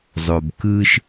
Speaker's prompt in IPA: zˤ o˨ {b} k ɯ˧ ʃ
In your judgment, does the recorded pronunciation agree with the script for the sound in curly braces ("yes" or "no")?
yes